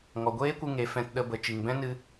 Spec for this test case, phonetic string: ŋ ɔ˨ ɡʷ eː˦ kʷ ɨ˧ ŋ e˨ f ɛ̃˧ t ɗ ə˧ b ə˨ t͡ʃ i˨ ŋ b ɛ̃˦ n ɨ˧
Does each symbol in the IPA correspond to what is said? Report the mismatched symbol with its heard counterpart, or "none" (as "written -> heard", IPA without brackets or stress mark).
none